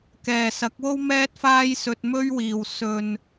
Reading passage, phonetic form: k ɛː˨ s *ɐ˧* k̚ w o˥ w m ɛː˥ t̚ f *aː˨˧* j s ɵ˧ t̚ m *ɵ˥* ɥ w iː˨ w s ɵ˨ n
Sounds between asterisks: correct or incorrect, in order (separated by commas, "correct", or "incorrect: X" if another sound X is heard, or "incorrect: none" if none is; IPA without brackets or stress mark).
incorrect: ɐ˨˥, incorrect: aː˥, correct